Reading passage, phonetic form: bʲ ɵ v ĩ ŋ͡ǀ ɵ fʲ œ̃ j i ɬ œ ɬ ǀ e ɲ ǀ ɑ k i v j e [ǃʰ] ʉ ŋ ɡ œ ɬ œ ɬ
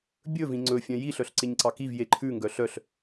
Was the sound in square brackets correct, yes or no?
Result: yes